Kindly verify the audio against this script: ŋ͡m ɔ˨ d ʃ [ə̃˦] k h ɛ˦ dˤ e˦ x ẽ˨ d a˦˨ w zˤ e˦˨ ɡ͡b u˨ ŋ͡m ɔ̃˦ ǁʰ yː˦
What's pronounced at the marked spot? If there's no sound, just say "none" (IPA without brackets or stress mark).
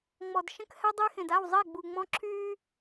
ə̃˦